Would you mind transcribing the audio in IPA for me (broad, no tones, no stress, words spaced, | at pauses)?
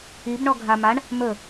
ibɳɔ ɡʱa maɳ | mɵ